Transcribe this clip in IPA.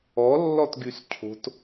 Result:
ɔ lːɔtɡyscʰo̤t

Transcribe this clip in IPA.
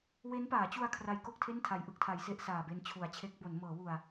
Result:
we˦˥npaː˩˦t͡ɕu˧a̯ kʰra˦˥jko˥˩k̚tʰe˥˩n tʰa˩˦jʔɯ˨˩k̚tʰa˩˦j se˦˥ʔsaː˨˩be˧n t͡ɕʰu˩˦a̯t͡ɕʰe˦˥k̚bo˩˦n mɤː˩˦wu˨˩a̯

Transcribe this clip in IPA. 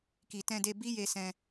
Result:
ki˨ tɛ̃˧de˧bi˦je˧ sɛ̃˧

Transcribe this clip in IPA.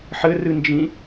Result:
ħɘrɨnd͡ʒĩ

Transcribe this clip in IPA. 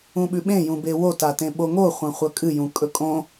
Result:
ũɓʉɓẽ jũbewota tẽɓoŋoχʷɐ̃ χʷɐkʼɨ jũkʼɵkʼõ

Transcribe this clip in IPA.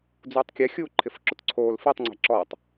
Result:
d͡zuːtˤkʲɛ xʲuːǃʰɪfǁʊtǀʰoːl fitˤŋ͡ǀɛ̤ ǁɔtˤ

